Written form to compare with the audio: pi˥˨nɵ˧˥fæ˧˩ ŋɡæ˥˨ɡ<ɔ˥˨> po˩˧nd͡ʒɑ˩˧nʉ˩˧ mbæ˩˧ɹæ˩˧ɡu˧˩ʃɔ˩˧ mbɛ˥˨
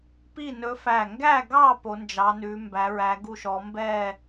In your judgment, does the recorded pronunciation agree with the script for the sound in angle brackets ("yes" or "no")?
no